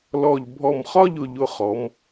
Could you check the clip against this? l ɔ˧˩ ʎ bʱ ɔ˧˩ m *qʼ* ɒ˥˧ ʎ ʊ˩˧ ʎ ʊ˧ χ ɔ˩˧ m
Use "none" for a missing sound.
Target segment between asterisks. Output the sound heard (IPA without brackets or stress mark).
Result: χ